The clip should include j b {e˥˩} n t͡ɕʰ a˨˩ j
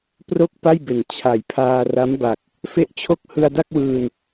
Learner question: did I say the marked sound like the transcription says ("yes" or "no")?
no